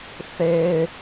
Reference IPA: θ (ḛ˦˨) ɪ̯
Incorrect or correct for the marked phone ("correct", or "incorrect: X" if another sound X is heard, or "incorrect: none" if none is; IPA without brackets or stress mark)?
incorrect: e˦